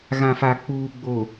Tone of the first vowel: low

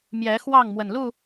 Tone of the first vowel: rising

